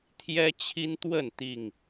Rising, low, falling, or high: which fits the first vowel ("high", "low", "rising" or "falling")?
high